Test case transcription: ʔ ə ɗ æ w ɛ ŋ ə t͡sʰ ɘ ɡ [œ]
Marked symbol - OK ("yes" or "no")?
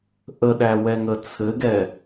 no